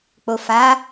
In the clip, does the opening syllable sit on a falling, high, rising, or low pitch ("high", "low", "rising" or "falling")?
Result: low